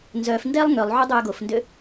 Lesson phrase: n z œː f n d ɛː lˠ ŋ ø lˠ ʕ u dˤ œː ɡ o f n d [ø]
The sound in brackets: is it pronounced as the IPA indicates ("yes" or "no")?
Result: yes